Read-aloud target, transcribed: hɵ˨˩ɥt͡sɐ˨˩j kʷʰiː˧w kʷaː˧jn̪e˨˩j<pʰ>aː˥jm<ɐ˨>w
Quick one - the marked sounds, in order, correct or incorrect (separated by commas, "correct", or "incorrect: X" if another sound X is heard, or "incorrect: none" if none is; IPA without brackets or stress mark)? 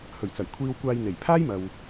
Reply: correct, correct